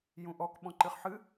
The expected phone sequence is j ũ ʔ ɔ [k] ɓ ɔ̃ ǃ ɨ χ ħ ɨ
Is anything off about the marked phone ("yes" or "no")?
no